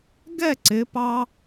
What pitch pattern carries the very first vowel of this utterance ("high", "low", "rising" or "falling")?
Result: falling